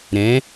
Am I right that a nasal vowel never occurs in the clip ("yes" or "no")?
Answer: no